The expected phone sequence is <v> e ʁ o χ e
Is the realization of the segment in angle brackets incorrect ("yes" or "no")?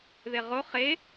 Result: yes